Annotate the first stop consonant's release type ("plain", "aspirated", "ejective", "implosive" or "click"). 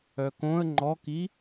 plain